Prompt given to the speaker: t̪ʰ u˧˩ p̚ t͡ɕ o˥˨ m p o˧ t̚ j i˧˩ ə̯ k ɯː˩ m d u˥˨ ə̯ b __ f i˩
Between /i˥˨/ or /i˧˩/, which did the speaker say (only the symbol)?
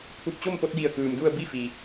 i˥˨